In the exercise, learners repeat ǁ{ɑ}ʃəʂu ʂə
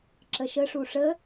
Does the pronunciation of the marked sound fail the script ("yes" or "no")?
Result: yes